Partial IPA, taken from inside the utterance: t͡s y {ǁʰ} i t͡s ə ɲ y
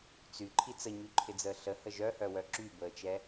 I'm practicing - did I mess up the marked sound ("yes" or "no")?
yes